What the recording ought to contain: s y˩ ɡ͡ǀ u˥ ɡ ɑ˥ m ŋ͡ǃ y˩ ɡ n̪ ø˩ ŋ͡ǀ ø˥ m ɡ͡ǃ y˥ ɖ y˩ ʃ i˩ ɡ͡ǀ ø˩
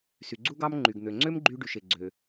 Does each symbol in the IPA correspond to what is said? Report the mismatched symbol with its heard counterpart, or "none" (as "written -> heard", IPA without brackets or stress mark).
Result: i˩ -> e˩